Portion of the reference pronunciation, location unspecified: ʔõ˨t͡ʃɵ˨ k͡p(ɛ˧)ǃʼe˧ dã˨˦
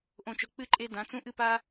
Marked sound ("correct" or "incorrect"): incorrect